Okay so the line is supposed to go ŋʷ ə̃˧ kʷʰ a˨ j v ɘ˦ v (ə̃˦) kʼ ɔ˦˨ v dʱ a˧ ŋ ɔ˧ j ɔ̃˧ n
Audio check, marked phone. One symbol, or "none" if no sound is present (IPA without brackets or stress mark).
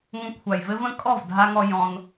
ə̃˦